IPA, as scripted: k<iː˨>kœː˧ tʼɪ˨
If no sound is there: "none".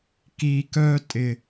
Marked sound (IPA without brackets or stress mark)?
iː˨